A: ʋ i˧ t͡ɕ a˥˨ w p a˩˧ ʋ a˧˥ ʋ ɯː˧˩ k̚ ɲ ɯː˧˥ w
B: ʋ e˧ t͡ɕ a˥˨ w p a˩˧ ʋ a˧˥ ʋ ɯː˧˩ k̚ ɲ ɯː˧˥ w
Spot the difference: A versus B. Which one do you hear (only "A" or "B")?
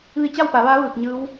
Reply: A